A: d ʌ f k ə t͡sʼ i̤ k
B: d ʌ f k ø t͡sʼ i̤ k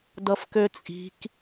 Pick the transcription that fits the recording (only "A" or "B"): B